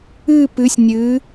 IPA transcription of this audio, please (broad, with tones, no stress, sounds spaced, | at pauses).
ɨː˥˧ p ɨː˧˥ sʲ nʲ ɨː˧˥